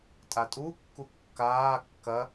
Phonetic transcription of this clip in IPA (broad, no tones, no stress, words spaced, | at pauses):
tʼatʼu kːukːaː kːɐ